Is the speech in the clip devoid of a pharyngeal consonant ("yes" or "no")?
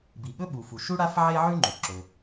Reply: no